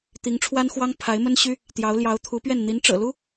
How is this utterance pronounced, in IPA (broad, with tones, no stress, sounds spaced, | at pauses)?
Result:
t̪ i˧˥ ŋ ʈ͡ʂʰ w a˥ n x w ɑ˥ ŋ pʰ a˧˥ ɪ̯ m ə˥ n ɕ y˥ | t̪ j ɑ˧˥ ʊ̯ l j ɑ˧˥ ʊ̯ t̪ʰ u˧˥ p ɥ ɛ˥˩ n n̪ i˧˥ n ʈ͡ʂ ɤ̰˨˩ l u˥